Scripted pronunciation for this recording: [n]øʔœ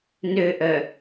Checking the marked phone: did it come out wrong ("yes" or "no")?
no